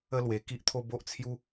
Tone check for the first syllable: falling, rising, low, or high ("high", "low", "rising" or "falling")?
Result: high